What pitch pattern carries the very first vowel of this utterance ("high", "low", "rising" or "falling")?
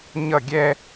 falling